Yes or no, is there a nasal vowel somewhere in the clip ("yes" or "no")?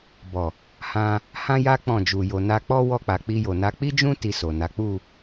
yes